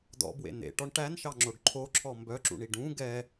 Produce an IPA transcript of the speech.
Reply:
d ɔ̰ b w ḛ n ḛ ʈ ɔ ɳ ʈ æ n ʃ ɑ ŋ͡ǁ o ɖ ǃʰ o ǁʰ ɔ m b œ ǁ ṵ ɳ i ɖ ũ ɡ ɛ

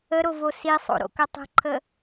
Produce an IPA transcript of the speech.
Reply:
ə ɾ o v o s i sˤ o̰ ɾ o̰ k ə tˤ ə̤ ǃʰ ə

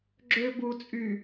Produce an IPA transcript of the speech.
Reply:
ɡ͡ǁ ø b u t͡sʼ y

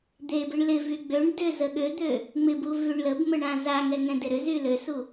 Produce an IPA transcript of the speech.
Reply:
d̪ e b ɪ ɳ l ɪ v y ɡ͡b ø ɳ d ʏ z ə ɠ ø d̪ ø | ŋ͡m ɪ b u v y ɳ l ə b m ə ɳ ã z a ŋ ɛ ŋ ɛ̃ d e ɾ ʏ z y l ø s u

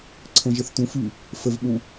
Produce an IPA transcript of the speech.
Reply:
ǀʰ ə̃ ʒ ə θ t ũ f y | f ə v ɓ ũ

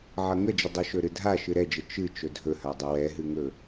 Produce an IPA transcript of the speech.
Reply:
ʕ ʌ ŋ ə d͡ʒ ə dˤ ɵ ʃ ɵ ɾ ɨ dʱ a ʃ ɨ ɾ ɛ d͡ʒ ə t͡ʃ ɨ t͡ʃ ɵ dʱ ɵ h a dˤ ə w ɛ ɦ ɨ ŋ ɵ

